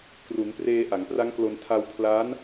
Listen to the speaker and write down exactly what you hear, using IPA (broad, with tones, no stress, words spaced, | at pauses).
kru˩˦npreː˧ ʔa˩˦ŋpra˦˥ŋklo˧n tʰa˧wpʰlaː˦˥n